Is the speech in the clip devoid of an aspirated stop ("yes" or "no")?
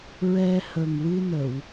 yes